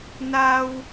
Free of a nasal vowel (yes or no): yes